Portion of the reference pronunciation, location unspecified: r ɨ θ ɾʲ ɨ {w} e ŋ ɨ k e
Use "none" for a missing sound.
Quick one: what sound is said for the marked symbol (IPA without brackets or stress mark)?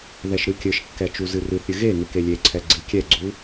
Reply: ɣ